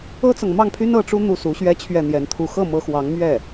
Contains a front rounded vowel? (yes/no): yes